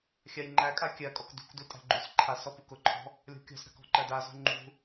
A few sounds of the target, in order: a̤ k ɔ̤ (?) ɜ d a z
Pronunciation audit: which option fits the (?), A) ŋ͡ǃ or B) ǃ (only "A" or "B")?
B